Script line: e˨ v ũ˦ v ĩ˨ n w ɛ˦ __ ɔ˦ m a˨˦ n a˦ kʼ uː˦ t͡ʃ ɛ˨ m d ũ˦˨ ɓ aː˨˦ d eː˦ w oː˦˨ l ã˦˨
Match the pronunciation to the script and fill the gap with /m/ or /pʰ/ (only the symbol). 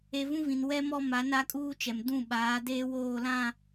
m